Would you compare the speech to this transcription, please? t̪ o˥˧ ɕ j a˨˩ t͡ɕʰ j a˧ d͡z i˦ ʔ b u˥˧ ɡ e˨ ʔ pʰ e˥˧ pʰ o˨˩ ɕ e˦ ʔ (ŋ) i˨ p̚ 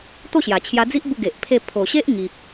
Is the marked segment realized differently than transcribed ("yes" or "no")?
no